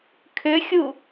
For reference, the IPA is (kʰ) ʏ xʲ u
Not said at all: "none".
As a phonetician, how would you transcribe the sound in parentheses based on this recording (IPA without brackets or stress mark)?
kʰ